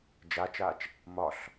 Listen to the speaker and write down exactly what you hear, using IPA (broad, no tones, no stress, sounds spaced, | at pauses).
d͡ʒ a t͡ʃ aː t͡ʃ | m ɒ ɬ